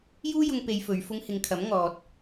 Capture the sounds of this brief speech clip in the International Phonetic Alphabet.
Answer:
j uː˥ j ʊ˧ ŋ p e˧ j f ɵ˨˧ ɥ f ʊ˧ ŋ h ɪ˨˧ ŋ kʰ ɐ˨˥ m ŋ ɔː˨ t̚

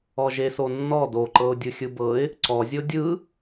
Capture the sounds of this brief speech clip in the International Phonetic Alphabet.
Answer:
ɔ ʒ e s o nː ɔ d o ǃ ɤ ʊ̯ dʲ ɯ xʲ ɯ b ɤ ɪ̯ | ǀ ɔ zʲ o dʲ ɯ

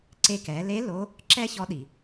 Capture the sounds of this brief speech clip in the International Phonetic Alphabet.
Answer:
ǀ e˧ k ɛ˩˧ l e˧˥ l o˧˥ | ǁ ɛ˥ ç ɔ˧˥ ɗ i˩

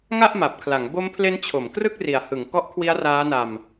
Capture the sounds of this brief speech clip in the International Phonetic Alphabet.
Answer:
ŋ a˥˩ ʔ m a˨˩ p̚ kʰ l a˩˦ ŋ b o˦˥ m pʰ l e˦˥ n t͡ɕʰ o˩˦ m k r ɯ˥˩ k̚ r i˨˩ a̯ h ɯ˩˦ ŋ k ɔ˦˥ ʔ kʰ w i˦˥ a̯ r aː˦˥ n a˧ m

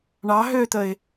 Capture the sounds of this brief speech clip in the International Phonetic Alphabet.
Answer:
ɳ ɑ ɦ ø t̪ ə ɪ̯

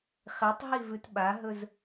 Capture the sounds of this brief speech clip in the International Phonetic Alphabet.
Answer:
χ e tˤ ɦ i v ʉ t ɓ a ɦ ɵ z

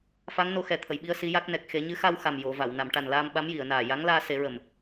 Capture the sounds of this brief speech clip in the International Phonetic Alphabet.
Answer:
f a˧˥ ŋ n o˧ x ɛ˨˩ t̪ʰ ə˨˩˨ j ɓ i˧ ə̯ s i˧˥ j a˦˥ k̚ n ɛ˨˩ k̚ x e˨˩˦ ɲ ɨ˧˥ x a˧ w x a˨˩ m j o˨˩˨ v a˨˩˨ w n a˨˩˨ m ʈ a˨˩ n l aː˧ m ɓ a˧˥ m j i˨˩˨ ə̯ n aː˨˩ j a˧˥ ŋ l aː˧ s e˨˩˦ ɹ ə˨˩ m

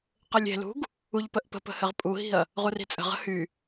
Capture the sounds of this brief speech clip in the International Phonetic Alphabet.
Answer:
q ɘ lʲ e̤ l ṳ ɡ | u ʎ p ə ʔ p ə̤ p ə̤ h ɘ ʁ pʼ u ɦ i̤ ɐ̯ | ʁ u r i̤ t͡sʼ ə̤ ʁ ə̤ h y

